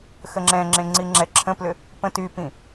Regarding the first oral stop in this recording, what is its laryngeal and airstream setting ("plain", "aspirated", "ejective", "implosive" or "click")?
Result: click